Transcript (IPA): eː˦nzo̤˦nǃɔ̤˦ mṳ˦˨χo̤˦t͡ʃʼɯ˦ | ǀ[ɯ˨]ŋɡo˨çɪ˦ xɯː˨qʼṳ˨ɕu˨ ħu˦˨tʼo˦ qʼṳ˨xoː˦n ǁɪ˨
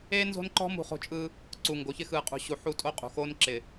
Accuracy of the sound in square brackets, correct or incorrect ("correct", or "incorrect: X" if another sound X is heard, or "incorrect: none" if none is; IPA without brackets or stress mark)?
incorrect: u˨